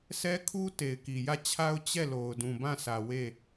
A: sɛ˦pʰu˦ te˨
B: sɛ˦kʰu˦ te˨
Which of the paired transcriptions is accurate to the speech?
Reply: B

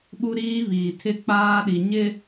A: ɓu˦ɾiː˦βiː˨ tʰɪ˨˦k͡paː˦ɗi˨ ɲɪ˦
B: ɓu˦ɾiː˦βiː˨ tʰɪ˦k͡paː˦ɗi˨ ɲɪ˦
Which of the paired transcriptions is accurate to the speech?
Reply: B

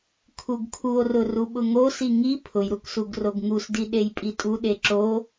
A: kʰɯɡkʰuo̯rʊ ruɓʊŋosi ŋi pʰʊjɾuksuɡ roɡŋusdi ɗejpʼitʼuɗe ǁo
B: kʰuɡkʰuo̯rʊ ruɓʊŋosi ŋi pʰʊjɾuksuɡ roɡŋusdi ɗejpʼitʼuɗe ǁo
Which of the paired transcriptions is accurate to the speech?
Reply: B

